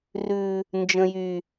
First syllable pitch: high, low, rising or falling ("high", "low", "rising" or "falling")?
low